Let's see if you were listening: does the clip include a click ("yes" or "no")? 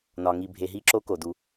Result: yes